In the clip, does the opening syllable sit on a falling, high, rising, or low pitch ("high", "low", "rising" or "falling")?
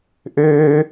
high